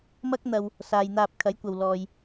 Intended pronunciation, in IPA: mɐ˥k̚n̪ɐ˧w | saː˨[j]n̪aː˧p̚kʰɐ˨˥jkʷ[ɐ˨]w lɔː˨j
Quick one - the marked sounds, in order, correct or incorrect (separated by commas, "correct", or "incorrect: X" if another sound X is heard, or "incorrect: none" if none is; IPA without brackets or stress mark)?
correct, correct